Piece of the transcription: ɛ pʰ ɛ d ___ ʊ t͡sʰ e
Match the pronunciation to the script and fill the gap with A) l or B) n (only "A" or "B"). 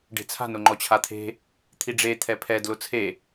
A